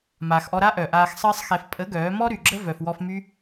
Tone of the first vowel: low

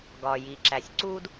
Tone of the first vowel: low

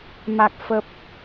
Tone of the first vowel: low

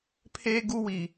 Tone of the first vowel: high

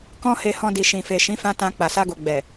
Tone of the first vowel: high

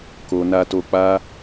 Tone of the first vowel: low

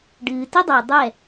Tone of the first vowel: low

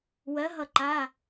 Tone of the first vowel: rising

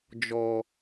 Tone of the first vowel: low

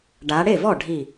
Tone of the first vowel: rising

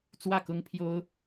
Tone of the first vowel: falling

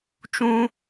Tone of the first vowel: high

